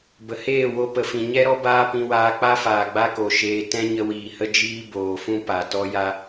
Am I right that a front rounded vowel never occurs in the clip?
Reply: yes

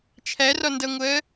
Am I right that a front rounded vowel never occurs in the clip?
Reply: yes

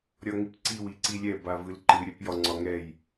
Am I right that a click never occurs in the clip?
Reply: no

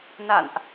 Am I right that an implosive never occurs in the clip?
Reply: yes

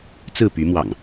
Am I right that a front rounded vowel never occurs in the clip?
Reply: no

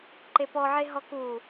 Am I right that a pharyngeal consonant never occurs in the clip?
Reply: no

